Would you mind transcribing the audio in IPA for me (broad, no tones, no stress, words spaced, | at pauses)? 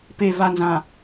pe vanzã